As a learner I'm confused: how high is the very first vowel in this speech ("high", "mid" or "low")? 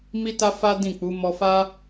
high